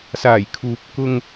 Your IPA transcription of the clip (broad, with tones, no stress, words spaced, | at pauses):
saː˨˩jkʰuː˨p̚kʊ˧ŋ